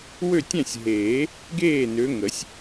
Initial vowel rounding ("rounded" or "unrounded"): rounded